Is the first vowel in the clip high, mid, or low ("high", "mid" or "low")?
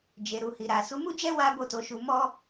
mid